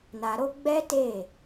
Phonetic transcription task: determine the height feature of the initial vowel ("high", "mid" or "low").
low